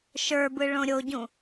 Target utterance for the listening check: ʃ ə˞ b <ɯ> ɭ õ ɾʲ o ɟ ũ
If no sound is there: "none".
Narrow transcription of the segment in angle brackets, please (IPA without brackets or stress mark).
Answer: ɯ